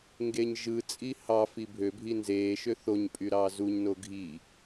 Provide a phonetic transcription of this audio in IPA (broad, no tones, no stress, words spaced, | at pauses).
ŋɡeɲʒɯt͡sʼi hɑfi bʱø bʱinzeːʃø θoɲpʼy ɾɑːzuɲno ɡʱi